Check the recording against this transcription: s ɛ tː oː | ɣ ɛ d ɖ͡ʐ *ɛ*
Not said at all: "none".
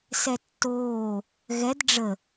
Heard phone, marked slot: ə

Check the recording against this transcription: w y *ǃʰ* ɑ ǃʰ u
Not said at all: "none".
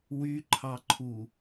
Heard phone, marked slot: ǃʰ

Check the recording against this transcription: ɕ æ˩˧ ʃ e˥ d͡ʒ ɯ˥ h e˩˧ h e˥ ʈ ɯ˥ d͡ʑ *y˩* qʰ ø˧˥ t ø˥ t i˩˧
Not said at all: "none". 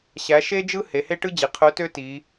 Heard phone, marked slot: i˩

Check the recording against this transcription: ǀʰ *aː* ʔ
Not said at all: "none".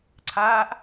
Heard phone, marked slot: aː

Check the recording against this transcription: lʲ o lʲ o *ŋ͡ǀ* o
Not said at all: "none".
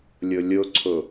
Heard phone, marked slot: ǀʰ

